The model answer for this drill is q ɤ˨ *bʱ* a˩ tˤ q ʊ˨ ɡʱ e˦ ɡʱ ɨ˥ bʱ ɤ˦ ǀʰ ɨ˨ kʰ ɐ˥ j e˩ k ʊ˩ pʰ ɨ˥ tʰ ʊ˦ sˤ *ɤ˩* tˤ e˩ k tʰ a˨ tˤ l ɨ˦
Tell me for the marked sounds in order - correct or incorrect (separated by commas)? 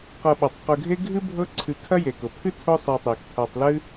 incorrect, incorrect